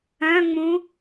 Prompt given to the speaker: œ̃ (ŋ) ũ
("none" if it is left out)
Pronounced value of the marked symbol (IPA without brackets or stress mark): ŋ͡m